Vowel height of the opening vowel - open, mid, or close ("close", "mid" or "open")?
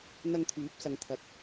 open